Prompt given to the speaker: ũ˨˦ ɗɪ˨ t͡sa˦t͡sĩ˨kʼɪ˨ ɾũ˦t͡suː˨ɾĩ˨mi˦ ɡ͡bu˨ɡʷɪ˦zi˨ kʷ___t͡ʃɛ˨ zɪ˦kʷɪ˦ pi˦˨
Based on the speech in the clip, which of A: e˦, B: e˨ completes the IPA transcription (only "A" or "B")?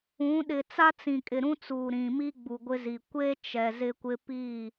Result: A